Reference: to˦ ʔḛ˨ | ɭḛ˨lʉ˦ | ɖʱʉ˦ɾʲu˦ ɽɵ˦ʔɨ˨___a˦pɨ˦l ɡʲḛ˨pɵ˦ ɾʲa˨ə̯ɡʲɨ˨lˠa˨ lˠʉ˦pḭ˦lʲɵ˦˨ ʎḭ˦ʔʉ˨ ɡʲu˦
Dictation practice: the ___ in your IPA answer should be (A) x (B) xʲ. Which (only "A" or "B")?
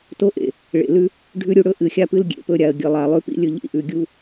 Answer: B